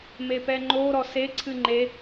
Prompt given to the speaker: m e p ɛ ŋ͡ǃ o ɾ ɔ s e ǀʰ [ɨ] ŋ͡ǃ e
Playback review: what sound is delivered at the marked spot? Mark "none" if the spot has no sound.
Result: ɨ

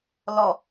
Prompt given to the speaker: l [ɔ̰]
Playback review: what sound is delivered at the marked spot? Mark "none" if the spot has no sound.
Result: ɔ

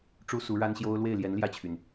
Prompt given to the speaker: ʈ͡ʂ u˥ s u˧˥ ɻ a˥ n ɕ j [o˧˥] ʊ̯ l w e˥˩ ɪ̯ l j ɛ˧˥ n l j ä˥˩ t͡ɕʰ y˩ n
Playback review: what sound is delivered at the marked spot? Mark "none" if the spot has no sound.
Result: o˥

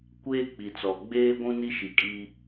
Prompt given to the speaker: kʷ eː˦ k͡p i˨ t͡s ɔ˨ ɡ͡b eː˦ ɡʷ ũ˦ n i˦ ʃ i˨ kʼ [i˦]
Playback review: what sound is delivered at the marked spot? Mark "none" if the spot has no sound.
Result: i˦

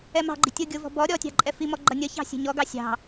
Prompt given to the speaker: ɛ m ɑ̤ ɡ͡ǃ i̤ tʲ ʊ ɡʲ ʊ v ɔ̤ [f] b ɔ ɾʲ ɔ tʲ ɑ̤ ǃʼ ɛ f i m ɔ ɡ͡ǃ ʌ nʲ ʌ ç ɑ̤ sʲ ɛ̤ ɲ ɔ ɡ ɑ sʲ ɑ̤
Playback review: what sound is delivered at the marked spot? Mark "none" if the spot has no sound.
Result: none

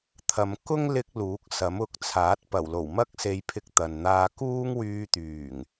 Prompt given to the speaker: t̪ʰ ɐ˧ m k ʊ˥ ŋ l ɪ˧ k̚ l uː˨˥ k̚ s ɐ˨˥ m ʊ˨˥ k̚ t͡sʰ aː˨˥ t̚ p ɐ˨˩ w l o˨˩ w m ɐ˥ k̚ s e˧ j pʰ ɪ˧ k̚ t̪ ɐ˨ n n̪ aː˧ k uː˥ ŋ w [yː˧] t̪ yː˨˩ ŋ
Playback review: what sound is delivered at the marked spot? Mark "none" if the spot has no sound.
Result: yː˧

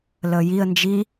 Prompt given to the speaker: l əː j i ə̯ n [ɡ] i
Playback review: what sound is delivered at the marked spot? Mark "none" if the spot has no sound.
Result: d͡ʒ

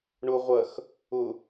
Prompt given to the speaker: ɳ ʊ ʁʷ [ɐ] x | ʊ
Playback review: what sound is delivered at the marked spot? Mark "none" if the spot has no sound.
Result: ɐ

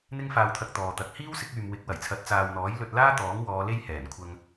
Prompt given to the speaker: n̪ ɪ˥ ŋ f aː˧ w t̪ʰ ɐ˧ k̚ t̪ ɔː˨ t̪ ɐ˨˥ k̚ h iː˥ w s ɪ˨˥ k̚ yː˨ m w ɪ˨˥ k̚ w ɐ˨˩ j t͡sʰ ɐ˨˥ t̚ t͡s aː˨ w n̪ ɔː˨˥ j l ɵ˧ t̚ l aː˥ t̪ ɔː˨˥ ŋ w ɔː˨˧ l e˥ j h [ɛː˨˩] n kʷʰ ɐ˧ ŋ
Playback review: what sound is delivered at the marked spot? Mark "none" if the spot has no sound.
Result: ɛː˨˩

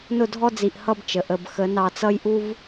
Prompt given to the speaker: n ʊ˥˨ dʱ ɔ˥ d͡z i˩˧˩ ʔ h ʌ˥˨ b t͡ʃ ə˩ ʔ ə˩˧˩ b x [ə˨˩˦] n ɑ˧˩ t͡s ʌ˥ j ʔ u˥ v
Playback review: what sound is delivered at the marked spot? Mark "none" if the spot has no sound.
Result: ə˨˩˦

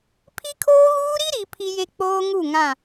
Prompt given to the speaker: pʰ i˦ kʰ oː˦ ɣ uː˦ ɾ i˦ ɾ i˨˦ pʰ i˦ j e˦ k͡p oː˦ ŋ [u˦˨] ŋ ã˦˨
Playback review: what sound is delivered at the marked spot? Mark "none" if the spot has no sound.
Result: u˦˨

